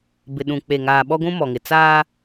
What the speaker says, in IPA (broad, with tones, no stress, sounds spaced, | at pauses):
b ɪ˨ ɗ ũ˨ k͡p e˨ ŋ aː˨ ɓ ɔ˦ ɡʷ ũ˦ m ɔ˨ ŋ ɪ˨ t͡s aː˦